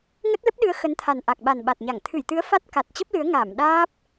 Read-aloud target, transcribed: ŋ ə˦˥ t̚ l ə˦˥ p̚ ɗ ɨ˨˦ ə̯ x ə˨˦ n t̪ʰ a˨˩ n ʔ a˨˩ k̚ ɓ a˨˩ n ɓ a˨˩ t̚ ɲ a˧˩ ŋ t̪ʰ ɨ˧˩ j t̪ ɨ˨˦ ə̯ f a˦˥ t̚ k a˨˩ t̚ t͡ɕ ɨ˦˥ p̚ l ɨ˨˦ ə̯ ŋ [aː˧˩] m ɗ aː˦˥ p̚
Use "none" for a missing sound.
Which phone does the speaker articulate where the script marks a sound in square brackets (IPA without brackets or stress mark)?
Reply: aː˧˩